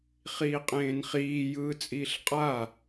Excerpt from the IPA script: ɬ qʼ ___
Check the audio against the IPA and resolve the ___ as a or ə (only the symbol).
a